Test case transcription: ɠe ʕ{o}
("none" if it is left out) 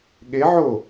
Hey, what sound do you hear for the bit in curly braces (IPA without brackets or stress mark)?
o